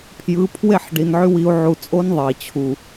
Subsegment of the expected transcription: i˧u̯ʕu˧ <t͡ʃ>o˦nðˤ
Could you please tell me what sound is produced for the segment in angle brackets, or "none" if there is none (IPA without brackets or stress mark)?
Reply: t͡sʼ